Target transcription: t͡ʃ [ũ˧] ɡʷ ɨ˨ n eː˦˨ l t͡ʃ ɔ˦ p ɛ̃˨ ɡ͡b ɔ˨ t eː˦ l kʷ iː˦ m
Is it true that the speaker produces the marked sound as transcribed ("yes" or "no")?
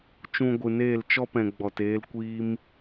yes